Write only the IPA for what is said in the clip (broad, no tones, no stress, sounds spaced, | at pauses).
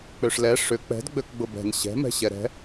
k͡p ø ʂ l ɛ ʂ ʏ k͡p ɛ̤ d ɡ͡b ø k ɡ͡b ʊ b ɛ̤ n ɕ ɛ̤ m ɛ̤ ɕ ɛ ɾ ɛ̤